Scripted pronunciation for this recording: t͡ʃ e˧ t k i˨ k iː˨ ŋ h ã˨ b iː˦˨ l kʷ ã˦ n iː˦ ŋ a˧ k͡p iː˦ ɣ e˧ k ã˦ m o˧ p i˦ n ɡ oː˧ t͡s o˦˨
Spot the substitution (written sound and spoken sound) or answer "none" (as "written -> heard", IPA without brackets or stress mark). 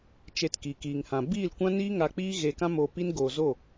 t͡s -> z